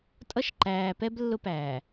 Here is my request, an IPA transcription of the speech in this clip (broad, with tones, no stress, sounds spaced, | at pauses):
tʼ ʌ˦ ʃ ǃ æː˨ p ɛ˦ b lː ʊ˦ p æː˨